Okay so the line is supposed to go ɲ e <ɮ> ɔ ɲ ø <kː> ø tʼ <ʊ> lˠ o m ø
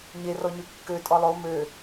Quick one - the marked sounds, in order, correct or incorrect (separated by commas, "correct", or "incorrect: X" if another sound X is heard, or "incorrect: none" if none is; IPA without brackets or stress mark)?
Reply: incorrect: r, correct, incorrect: ɔ